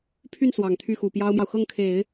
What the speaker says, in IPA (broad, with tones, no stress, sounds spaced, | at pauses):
pʰ y˥˩ n s w ɑ˨˩ ŋ t̪ʰ y˥˩ x u˨˩ p j ɑ˥ ʊ̯ m j ɑ˨ ʊ̯ x ɤ˥˩ ŋ kʰ e˨˩˦ ɪ̯